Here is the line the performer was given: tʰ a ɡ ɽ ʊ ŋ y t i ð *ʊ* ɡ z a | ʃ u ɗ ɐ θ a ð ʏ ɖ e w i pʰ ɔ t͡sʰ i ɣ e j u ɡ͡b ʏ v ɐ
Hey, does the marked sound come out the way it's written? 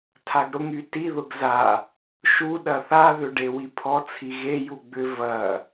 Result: yes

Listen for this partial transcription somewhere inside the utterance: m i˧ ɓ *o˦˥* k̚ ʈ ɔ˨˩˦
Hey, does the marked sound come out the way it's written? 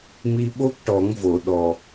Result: yes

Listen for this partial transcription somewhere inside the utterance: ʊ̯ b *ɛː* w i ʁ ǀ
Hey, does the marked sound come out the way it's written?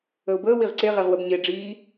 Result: no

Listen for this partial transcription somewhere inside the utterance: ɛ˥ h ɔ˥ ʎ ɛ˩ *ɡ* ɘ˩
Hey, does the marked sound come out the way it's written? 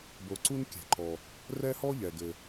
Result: yes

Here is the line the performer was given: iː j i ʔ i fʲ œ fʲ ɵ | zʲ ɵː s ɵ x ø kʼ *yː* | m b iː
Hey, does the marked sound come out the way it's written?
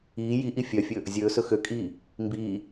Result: no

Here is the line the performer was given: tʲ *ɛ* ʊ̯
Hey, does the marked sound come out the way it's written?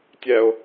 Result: yes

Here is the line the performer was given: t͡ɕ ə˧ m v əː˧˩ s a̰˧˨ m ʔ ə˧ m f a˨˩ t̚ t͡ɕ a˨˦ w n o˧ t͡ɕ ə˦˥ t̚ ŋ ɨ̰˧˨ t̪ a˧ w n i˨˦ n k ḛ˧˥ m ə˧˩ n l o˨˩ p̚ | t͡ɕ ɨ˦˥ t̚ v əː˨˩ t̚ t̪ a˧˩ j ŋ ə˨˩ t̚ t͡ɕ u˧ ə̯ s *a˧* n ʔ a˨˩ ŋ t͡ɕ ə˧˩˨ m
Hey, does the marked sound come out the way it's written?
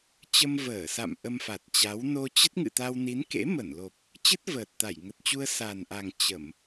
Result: no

